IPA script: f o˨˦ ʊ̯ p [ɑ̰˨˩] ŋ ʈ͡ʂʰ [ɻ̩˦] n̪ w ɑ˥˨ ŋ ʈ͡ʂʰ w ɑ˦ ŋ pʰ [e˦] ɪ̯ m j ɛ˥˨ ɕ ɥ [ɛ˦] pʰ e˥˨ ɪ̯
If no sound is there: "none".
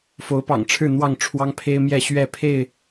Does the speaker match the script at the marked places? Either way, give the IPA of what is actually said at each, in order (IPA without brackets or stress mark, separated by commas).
ɑ̰˨˩, ɻ̩˥˨, e˦, ɛ˥˨